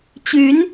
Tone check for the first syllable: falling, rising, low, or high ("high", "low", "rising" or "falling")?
rising